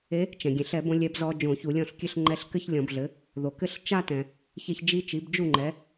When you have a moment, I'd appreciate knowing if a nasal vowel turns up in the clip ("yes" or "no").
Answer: yes